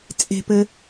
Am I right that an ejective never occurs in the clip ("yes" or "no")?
no